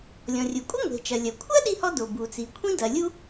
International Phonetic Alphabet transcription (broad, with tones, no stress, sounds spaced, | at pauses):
lʲ ɔ̃˩ rʲ u˩ kʷʼ ɨ˥ ŋʷ e̤˩ t͡ʃ ɐ˩ lʲ ɐ˩ kʷʰ ɐ˥ ɗ i˥ h ɔ˥ d o˩ b u˩ t͡s i˩ kʷʰ ĩ˥ d ɐ˩ lʲ u˥